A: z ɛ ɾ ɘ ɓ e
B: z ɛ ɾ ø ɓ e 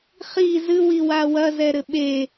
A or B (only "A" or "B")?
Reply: A